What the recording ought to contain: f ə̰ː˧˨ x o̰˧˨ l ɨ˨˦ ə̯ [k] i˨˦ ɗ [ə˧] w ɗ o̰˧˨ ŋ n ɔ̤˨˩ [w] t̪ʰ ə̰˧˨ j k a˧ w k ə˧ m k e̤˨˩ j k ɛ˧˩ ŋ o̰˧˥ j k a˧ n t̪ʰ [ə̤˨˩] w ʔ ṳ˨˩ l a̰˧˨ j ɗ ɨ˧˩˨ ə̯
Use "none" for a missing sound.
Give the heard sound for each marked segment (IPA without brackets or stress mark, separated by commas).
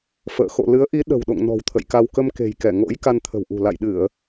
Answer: ʔ, ə̤˨˩, w, ə̤˨˩